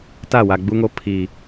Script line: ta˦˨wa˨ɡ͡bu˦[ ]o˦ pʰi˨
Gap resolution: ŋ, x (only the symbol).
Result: ŋ